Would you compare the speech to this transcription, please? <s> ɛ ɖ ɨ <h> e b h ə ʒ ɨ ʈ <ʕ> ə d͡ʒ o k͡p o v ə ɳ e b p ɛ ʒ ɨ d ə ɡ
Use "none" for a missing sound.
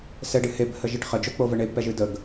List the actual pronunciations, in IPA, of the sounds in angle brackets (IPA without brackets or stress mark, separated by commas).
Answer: s, h, χ